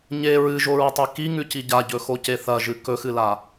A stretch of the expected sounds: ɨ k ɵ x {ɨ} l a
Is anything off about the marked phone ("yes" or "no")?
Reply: no